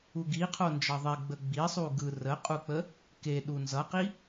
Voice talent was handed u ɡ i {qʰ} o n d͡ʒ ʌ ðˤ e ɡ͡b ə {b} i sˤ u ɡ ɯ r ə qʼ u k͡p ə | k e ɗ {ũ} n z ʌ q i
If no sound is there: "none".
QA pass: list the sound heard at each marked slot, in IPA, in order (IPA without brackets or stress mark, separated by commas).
qʰ, ɡ͡b, u